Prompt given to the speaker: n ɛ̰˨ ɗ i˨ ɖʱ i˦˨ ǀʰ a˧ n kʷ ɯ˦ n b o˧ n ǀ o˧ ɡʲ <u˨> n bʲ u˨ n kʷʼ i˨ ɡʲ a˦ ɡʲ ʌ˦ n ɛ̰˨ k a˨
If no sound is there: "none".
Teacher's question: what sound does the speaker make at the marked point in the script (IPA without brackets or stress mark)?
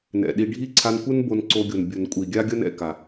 o˨